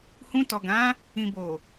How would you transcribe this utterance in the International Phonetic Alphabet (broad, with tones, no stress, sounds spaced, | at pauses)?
h ũ˧ t ɔ˨ ɡ ã˨˦ | ĩ˨ b o˨